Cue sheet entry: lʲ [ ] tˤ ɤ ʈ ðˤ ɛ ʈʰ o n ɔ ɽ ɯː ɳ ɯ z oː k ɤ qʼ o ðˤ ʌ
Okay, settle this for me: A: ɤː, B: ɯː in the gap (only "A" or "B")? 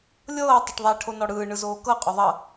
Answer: A